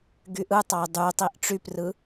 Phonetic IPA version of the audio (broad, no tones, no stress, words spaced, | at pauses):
ɡyʔɯtˤɑɪ̯ dˤytˤiʔ ʈ͡ʂyprɯ